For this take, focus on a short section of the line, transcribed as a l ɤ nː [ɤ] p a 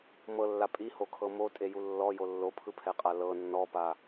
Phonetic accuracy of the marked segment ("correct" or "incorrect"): incorrect